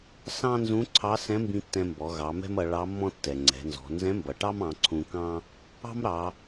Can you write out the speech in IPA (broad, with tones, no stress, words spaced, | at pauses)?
sɑ̃˥nzũ˧˥ ǀʰɑ˧˥sɛ̃˧˥mbĩ˧ tːɛ̃˧mbɔ˩˧ ɣɑ˩˧mɛ̤˥mʌ˩˧ ɭɑ˧˥mːɔ̃˥ tːɛ˩ŋ͡ǀɛ̤˩˧nzɔ̤˩˧ nzɛ̃˧˥mbʌ˩ʈɑ˥mɑ̃˩˧ ǀʰũ˧ kɑ̃˥ | ɑ̤˥mɾɑ˩˧